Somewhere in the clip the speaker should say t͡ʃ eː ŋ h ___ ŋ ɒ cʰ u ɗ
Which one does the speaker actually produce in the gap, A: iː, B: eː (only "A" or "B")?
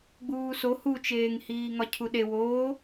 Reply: A